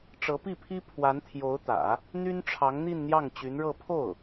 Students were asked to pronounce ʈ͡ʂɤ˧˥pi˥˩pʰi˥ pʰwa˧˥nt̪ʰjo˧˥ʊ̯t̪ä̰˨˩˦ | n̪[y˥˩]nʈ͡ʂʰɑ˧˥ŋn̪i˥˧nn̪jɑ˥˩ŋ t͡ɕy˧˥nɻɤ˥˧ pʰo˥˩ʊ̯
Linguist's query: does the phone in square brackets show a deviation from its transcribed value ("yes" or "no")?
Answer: yes